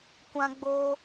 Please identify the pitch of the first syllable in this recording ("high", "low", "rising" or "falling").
high